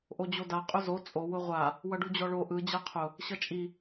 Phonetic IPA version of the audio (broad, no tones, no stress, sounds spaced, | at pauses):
ʔ o d͡ʑ o d a qʼ ʊ z o t͡sʼ o w ʊ ʁʷ a | w ʌ ɖ u d͡ʑ ɔ ɭ o ʔ ɯ d͡ʑ a qʰ ʊ | ɕ ʌ t͡ʃʼ i